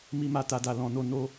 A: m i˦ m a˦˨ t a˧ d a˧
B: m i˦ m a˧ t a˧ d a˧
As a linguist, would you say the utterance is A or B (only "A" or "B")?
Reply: A